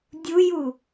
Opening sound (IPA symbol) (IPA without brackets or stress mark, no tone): dʲ